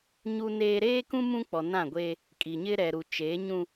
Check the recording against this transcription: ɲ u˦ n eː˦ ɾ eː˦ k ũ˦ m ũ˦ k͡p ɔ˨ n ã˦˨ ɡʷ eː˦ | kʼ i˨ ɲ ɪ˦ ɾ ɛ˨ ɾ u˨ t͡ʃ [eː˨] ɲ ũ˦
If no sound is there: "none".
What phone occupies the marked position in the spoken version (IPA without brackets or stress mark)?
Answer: eː˨˦